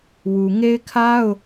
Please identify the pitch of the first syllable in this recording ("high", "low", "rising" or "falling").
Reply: low